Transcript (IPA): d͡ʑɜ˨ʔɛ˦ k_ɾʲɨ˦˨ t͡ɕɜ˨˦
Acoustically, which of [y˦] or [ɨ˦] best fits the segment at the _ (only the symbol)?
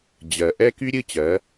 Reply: y˦